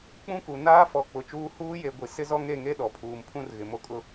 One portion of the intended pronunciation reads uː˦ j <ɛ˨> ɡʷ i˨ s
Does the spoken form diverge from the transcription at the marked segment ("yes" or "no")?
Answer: yes